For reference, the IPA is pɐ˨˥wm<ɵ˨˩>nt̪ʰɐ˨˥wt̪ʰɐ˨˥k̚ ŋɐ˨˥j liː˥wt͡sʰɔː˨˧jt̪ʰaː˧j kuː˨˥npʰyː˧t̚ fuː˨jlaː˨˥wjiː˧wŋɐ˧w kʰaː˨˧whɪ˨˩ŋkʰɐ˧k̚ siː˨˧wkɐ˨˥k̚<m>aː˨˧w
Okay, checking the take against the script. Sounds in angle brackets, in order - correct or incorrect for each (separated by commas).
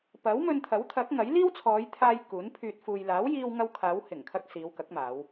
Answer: incorrect, correct